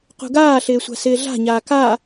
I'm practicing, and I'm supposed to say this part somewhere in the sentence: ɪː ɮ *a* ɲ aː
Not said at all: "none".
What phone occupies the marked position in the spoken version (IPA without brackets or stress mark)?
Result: a̤